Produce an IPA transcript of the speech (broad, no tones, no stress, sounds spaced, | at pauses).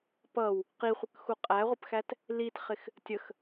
p ʌ w | q i χʷ ə k x u qʼ æ ʁʷ ə p x æ t | l i t χ ɪ x | tʲ ə x